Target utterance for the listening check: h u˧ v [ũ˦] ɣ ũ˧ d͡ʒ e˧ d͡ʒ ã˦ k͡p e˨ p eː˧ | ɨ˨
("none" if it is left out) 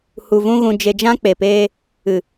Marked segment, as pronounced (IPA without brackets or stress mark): ũ˦